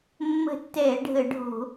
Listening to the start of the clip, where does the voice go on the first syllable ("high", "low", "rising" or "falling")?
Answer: falling